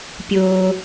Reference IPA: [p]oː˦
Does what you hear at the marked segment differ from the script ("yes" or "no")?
yes